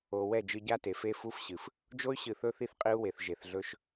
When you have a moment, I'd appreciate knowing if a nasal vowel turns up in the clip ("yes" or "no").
no